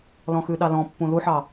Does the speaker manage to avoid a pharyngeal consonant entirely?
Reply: no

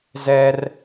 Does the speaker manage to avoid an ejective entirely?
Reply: yes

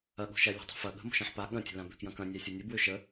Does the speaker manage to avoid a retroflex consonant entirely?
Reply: yes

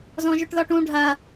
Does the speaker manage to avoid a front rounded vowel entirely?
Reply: no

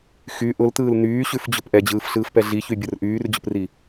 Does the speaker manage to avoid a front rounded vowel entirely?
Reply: no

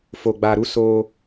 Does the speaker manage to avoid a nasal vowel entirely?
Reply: yes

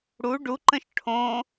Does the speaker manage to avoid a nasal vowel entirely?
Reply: no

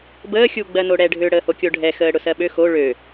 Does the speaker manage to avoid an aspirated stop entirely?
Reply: yes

